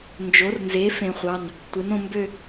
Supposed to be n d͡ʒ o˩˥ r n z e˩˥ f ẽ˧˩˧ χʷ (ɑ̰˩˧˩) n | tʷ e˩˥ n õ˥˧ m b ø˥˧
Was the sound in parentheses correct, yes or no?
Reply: no